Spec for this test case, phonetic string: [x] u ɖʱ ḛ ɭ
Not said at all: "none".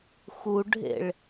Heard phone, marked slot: x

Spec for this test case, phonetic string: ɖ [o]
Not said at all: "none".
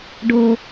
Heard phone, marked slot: o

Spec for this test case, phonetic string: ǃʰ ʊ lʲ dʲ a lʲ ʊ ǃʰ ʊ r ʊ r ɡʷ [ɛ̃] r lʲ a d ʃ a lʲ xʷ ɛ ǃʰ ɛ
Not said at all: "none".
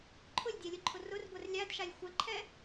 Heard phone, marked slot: ɛ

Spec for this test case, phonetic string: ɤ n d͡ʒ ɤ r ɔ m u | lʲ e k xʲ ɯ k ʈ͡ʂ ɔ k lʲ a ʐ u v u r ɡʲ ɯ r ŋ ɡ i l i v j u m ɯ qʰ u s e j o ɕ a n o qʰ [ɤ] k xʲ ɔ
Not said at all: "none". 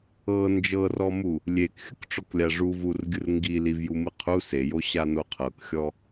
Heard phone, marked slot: ɤ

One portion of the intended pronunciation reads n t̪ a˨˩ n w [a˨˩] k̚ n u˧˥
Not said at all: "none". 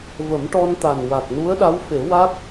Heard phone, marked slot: a˨˩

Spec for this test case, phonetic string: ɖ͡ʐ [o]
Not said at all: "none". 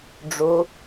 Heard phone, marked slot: o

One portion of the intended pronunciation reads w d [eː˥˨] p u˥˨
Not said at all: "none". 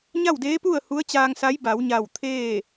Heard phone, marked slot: eː˧˥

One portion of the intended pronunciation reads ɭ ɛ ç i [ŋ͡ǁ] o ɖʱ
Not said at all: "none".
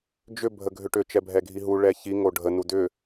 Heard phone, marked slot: ŋ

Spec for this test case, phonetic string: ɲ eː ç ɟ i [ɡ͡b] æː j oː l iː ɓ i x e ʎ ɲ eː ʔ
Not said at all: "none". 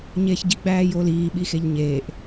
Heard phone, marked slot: ɡ͡b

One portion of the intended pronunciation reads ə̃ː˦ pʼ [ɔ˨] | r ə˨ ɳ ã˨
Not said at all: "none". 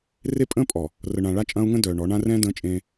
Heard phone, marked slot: ɔ˨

